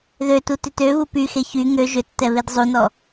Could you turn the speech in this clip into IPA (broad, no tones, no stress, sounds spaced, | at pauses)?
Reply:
ð ø t u t ʏ t ø β u p y x e ç y ŋ ø ʒ ʏ tː ɛ β e d zˤ u n ɔ